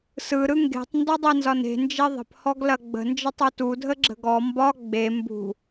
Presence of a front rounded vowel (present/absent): absent